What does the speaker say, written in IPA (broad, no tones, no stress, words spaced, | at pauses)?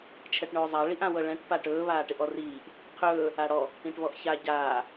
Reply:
t͡ʃʰɛʈɳɵːzˤa ɭiʔãwɤɭɛ̃ʈ paʈɵː βaːʈɪʔɔriːʔ | qʰɵː | aɽɔ | ĩʈβɔʔça ɟaː